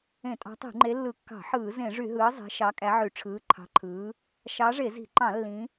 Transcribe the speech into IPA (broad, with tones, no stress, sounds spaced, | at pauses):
ẽ˧˩˧ tʼ ɑ̤˨˦ tˤ i̤˧˩˧ ŋ͡ǃ e˨˦ lː ɯ˧˩˧ kː ɑ̤˧˩˧ ħ ɯː˧˩˧ z ẽ˧˩˧ ʐ y˧˩˧ ɦ ɯː˨˦ zˤ e̤˨˦ ʃ ɑ˨˦ kʼ æ˨˦ ʕ y˧˩˧ ʈ͡ʂʰ ɯː˨˦ ǃʰ ɑ̤˨˦ ǃʰ ɯː˨˦ | ʃ ɑ˨˦ ʐ e˧˩˧ z i̤˧˩˧ ǃ ɑ̃˧˩˧ lː ĩ˨˦